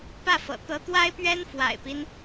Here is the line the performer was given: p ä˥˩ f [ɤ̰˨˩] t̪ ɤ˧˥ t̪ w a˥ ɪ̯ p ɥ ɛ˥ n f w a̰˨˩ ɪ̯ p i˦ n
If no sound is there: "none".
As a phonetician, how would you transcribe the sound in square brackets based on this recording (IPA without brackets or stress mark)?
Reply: ɤ̰˨˩